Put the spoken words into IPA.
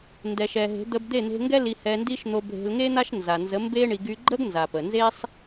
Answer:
n d ɛ˨ ʃ ɛ˨ ɦ e̤˨˦ d̪ ə˧ b d̪ e˦˨ n̪ e̤˧ ŋ ɡ ɛ˦ l i˧ h ɛ˧ n d i˦ ʃ n̪ o˧ bʱ e̤˧ l ŋ e˦ n̪ a˦ ʃ n z a˨ n z ə˨˦ m b e˦ ɳ i˧ ɡ y˧ ɡ͡ǃ ə˦ ɡ n z a˨ p ə˨ n z e˦ sˤ

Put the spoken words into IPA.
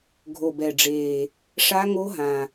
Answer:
ɡʱ o˨˩ b ɛ˨˩ ɖ͡ʐ eː˨˩ | ʂ a˦˥ ŋ o˦˥ ɦ ã˨˩

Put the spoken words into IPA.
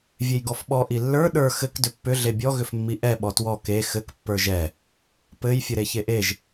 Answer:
vʲ e j ɡ ɔ f ɓ ɔ ʔ i lː ə˞ ɗ ə˞ x ɘ k d ʏ pː ʏ ɮ e bʲ ɔ ɣ ʏ f mː i ʔ ɛ ɓ ɔ t w ɔ k e x ɘ k pː ə˞ ʒ ɛ | p ɘ j fʲ ɘ ɾ e ç e ʔ e ʒ

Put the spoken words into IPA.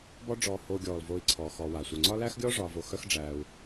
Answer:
b ɔ˦ ɖ͡ʐ ɔː˨ h oː˨ ɡʲ ɔː˩ l v oː˨ i̯ ǀʰ ɔː˩ x ɔː˨ w aː˩ sʷ œ˩ ŋ͡ǀ ɒ˦ l æ˥ x ɡʲ ɔː˥ ʐ ɒː˨ v o˨ x œ˦ x ɖ͡ʐ æː˨ u̯

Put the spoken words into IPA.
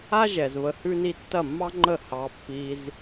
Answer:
a˦ ʒ ɛ˨ z β ə˧ h ʉ˦ n i˦ tː ɐ˦˨ mː ɑ˦ ŋ͡ǃ ə˦˨ h ɑ˧ pː i˧ z

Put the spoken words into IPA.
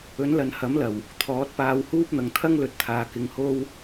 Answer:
ɵ˨˥ n l ɐ˨ n h ɐ˨˥ m l ɐ˨˩ w | t̪ʰ ɔː˨˥ t̚ p aː˧ w h uː˥ p̚ n̪ ɐ˨ ŋ t̪ʰ ɐ˥ ŋ l ɵ˧ t̚ t̪ʰ aː˨ k ɪ˨˧ ŋ h o˥ w

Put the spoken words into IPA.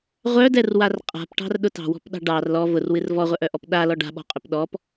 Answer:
ʁʷ œ d ɛ r w a r qʼ a̤ p ʈ ɑ̤ r ɗ ʊ t ɑ̤ w ɔ̤ p ɗ ɑ̤ ɖ ɑ r l ɔ v ʊ r w ɨ r v ɔ ʁʷ œ ʔ œ ʔ ɔ p ɗ a l ɔ ɖ a̤ ɓ ɔ̤ qʼ œ p ɗ ɔ p

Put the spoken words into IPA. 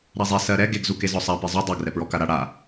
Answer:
ɾ a zˤ ɛ s ɜ ɾ ɛ ɡ e ɡ z u k e z ɔ sˤ a p e zˤ o dˤ ɜ ɡ r ɛ p ɹ ɔ k a ɾ a ɽ a

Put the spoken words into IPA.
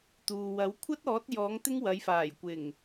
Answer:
t̪ uː˨ w ɐ˨˥ w kʷʰ ɐ˥ t̚ ɔː˨˥ t̚ j ɔː˨˥ ŋ t̪ ɪ˥ ŋ w ɐ˨˧ j f aː˨˩ j kʷ ɪ˨˩ ŋ

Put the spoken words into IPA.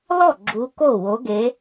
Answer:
l ɔ˥˩ ɡ͡ǁ u˨˦ k o˥˩ w o˨˦ ɡ e˨˦

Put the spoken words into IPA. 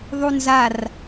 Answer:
ðˤ u n z a r

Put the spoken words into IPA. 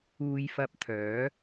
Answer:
uː˧ j f ɐ˧ p̚ t̪ʰ œː˨˥

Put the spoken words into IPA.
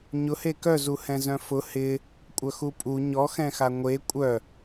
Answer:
ɲ ʊ h e k œ z u h ɛ̃ z œ̃ f ʊ h ɪ | kʷʼ œ x u pʼ u ɲ ɔ x ɛ̃ x a ŋʷ e kʷʼ œ

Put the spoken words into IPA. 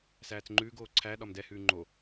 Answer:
s æː t͡s ŋ͡ǃ ʉː ɡ oː ǀʰ æ ɗ ɒ m d ɛ h ʉː ŋ͡ǃ o

